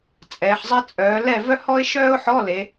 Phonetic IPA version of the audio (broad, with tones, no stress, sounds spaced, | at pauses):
t͡sʼ ɛː˩˧ ħ zˤ ɛ˥ t͡sʼ œː˩˧ l ɛ˥˨ v œ˥ h ɔ˥ ɪ̯ ʃ œː˥ ʊ̯ ħ ɔ˧˥˧ l e˩˧